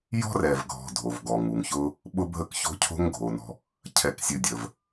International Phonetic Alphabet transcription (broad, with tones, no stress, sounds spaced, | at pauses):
j ɔ̤˥ r ɛ˨ v ɡʱ ɔ̤˨ dʱ o˩ v ɡ ɔ˩ ŋ u˩ ŋ ç ʊ˦ | ɓ ʊ˦ bʱ ə˦ k ç o̤˦ cʰ o̤˦ ŋ ɡʱ o˩ n ɔ̤˨ | cʰ ɛ˨ k sʲ ɨ˨ dʲ ə˩ v